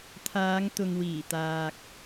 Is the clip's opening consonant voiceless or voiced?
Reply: voiceless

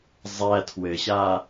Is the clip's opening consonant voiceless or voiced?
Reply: voiced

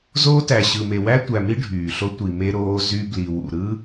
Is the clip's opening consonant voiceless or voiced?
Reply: voiced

